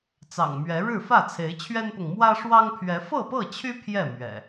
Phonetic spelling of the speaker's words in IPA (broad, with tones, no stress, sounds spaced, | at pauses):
t͡s ɑ̰˨˩ ŋ m ɥ ɛ˨˦ ɻ ɻ̩˥˨ f ä˥˨ t͡sʰ e˨˦ ɪ̯ t͡ɕʰ ɥ ɛ˦ n p ʊ˨ ŋ m w ä˦ ʂ w ɑ˦ ŋ pʰ ɥ ɛ˨˦ f ɤ˥˨ p ɤ˥˨ t͡ɕʰ y˦ pʰ j ɛ˥˨ m ɥ ɛ̰˨˩